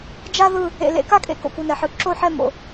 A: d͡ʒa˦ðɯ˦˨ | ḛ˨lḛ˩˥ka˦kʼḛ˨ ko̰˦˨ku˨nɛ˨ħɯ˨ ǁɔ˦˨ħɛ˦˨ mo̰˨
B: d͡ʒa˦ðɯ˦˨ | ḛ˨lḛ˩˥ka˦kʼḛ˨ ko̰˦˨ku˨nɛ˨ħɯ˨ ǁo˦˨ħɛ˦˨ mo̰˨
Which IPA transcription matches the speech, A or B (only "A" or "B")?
B